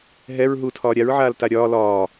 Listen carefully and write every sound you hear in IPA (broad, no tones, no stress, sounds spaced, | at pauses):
ɦ ɛ ɹ ɦ uː tʰ ɒː ɾʲ a ɹ ʕ aː l t a ɾʲ ɒː l ɒː